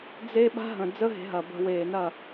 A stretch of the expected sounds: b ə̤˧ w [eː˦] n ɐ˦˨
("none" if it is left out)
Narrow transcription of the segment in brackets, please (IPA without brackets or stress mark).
eː˨